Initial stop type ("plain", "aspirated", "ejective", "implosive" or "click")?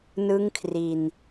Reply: aspirated